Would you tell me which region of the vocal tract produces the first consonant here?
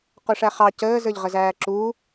uvula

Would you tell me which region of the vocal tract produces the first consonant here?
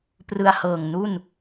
lips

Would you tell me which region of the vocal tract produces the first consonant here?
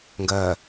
velum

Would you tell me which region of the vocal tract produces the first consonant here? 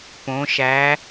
lips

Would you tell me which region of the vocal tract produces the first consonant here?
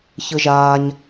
palate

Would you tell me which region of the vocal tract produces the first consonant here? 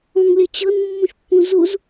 velum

